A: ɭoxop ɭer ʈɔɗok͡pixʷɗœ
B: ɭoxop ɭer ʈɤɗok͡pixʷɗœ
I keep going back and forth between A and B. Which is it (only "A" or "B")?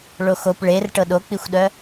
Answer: B